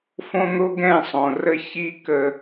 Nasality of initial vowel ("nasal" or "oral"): nasal